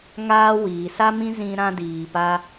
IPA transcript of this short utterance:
ŋ aː˦ w iː˨ s a˦ m ĩ˦ z ĩ˦ ɾ ã˦ d iː˨ p a˧

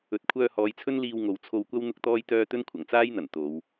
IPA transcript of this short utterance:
ɵ˨ t̚ kʷʰ œː˧ h ɔː˨˧ j t͡sʰ ɵ˥ n l iː˧ w ŋ o˨ w t͡sʰ o˧ w kʷ ɐ˥ w n̪ ʊ˥ k̚ t̪ ɔː˥ j t̪ œː˥ t̪ ɵ˥ n kʷʰ ɐ˨˩ ŋ t͡s aː˥ j n̪ ɐ˨˩ n t̪ o˨˧ w

